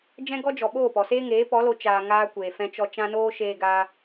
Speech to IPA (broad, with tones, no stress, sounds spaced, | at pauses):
d͡ʒ ɛ̃˦ ɡ ɔ˦ d͡ʒ ɔ˨ ɓ oː˦˨ p ɔ˨ s eː˦ ŋ eː˨˦ p ɔ˨˦ l o˧ t͡ʃ aː˧ ŋ aː˦ kʷ eː˨ f ɛ̃˧ t͡ʃ ɔ˧ t͡ʃ ã˧ n oː˧ ʃ eː˧ ɡ aː˧